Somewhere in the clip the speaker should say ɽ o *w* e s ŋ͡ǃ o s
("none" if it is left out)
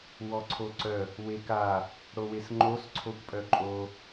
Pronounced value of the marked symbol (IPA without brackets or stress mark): w